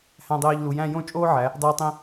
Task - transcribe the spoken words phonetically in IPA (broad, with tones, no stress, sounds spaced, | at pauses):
h æ̃˧ dˤ eː˧ ʎ l u˩˧ j æ̃˥˧ j õ˥˧ t͡ʃʼ oː˥ ʕ æ˩˧ | dˤ eː˧ tˤ ĩ˧